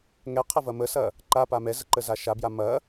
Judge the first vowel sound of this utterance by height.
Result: mid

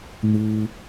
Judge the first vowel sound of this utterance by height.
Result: high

